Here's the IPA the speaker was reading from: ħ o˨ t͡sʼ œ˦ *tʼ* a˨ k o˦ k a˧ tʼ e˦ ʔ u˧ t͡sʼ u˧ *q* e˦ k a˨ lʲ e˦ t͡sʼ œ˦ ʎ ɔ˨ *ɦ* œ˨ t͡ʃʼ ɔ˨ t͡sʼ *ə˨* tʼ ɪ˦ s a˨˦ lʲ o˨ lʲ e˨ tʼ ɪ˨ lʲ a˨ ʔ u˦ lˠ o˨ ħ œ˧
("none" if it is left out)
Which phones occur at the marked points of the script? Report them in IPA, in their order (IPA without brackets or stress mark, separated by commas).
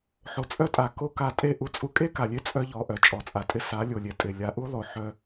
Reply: tʼ, kʼ, ʔ, a˨